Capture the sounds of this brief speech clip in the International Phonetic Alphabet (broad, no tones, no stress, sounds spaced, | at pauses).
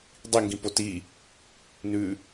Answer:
dˤ i ŋ ɡ ĩ p o t i | n ʉ